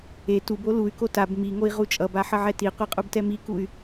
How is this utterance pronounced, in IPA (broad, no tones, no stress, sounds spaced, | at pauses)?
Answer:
e t u b o l u y̯ k o t a b m i ŋ o i̯ ʁ u t͡ʃʼ ʌ b a ħ ʌ ʕ ɛ t i qʷ i qʼ u b t ɛ m i k u y̯